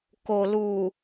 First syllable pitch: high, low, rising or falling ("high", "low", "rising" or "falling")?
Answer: low